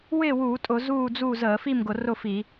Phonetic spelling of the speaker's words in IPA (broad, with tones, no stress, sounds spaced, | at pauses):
w ɪː˥˨ w uː˧˩˧ tʼ ʊ˧˩˧ z uː˥˨ d͡z u˥˨ z əː˧˩˧ f i˥˨ m ɡ ʊ˧˩˧ r ʊ˥˨ f i˧˩˧